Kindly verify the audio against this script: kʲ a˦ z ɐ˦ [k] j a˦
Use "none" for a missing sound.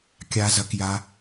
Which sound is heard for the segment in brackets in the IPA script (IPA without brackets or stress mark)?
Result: k